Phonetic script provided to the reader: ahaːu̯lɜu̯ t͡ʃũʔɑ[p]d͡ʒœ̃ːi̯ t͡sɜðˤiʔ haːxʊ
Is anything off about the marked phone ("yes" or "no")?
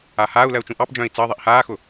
no